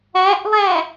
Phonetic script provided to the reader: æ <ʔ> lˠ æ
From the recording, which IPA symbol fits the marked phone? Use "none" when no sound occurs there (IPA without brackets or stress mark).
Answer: ʔ